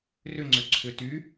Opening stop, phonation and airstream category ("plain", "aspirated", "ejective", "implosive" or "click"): click